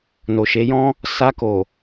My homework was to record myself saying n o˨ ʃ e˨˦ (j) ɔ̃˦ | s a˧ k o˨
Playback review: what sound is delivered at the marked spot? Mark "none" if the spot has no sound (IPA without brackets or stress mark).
j